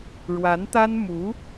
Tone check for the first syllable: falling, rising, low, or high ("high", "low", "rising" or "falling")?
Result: rising